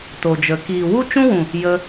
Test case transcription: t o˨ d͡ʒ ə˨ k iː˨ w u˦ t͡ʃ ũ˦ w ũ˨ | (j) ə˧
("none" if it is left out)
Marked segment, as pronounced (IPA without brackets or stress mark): j